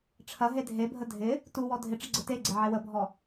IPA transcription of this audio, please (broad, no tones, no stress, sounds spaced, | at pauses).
ʈ͡ʂʰ ɐ ɦ e dʱ e bʱ ə dʱ ɪ | t u w ɔ dʱ ɪ ʈ͡ʂ ɪ ɡ͡ǀ ə t e ɡ͡ǀ e ʕ e w ə bʱ ɔ